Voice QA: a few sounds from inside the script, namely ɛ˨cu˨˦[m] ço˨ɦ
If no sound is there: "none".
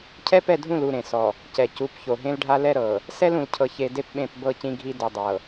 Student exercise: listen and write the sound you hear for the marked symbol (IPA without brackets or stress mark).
p